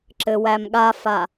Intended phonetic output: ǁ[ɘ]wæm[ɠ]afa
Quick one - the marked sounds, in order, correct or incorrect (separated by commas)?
correct, correct